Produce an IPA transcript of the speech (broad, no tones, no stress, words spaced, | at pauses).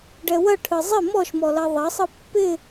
ɖɛwɐ ʈʰɯzˤɪ mɔʃ mɔlɐðˤɐ sˤɯpːɪ